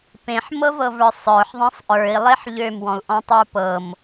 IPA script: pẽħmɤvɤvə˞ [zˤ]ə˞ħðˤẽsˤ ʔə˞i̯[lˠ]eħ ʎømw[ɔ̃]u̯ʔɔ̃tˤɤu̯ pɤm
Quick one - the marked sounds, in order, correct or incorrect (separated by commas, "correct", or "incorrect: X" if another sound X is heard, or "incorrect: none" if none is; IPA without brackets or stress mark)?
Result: incorrect: sˤ, correct, correct